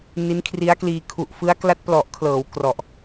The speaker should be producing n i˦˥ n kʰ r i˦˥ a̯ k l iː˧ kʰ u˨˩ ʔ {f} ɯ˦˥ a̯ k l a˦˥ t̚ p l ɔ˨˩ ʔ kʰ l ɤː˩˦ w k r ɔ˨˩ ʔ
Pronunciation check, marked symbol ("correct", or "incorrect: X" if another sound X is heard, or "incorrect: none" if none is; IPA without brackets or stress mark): correct